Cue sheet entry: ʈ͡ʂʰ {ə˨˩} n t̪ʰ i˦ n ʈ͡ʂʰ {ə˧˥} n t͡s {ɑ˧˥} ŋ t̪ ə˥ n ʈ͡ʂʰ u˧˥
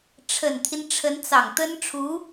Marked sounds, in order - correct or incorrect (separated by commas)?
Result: correct, correct, incorrect